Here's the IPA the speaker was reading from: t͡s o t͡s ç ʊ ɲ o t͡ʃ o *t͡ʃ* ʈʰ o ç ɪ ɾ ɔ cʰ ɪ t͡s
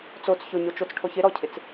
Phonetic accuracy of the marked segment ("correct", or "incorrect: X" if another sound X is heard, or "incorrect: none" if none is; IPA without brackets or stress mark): incorrect: t͡s